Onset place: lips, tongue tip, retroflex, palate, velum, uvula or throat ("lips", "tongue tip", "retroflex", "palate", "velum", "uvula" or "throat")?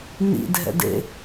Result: tongue tip